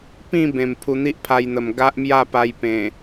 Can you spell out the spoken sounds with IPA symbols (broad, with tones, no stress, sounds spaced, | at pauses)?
p ĩ˥˧ b ẽ˨˩ m pʰ u˧ n̪ i˦ ʔ pʰ a˧ j n̪ ə˨˩ m ɡ a˦ ʔ m j a˥˧ p a˧ j p ẽ˨˩